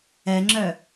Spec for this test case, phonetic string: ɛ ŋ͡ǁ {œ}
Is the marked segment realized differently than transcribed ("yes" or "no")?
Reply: no